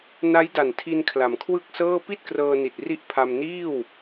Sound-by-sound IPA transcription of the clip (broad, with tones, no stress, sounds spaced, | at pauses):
n a˦˥ j d a˨˩ n tʰ i˧ n kʰ l a˩˦ m kʰ w ɯ˥˩ k̚ s ɤː˥˩ p i˥˩ t̚ k r ɤː˧ n i˨˩ t̚ r i˥˩ ʔ pʰ a˧ m n iː˥˩ w